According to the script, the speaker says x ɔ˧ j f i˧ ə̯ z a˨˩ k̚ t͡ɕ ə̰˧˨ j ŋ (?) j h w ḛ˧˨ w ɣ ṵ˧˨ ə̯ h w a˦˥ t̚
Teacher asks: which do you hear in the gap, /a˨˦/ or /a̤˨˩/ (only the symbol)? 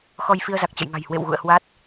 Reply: a̤˨˩